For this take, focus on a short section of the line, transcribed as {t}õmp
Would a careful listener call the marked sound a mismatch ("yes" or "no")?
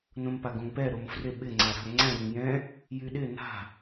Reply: yes